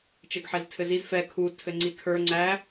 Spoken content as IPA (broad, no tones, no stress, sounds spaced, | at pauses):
t͡ʃ ɘ ɡ ħ ɛ z tʰ ɘ z i z f ɛ kʰ u tʰ ɘ ŋ͡ǀ i kʰ ə˞ ŋ͡ǀ æ